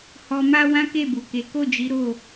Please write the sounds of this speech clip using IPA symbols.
h ɔ˧ m a˦ w ã˦ k e˦˨ b u˨ k e˨˦ k o˦˨ d͡ʒ i˨˦ ɾ o˦˨

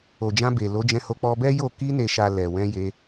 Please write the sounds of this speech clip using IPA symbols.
o˨ d͡ʒ ã˧ b e˨ l o˨˦ d͡ʒ ɛ̃˧ h o˧ k͡p ɔ˧ b ɛ˦ j o˦˨ k i˧ n e˨ ʃ a˨ l ɛ˨ w ɛ̃˧ j e˧

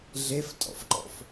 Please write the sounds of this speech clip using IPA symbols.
ɮ e f tʼ ɔ̰ f ǃ ɔ̰ f

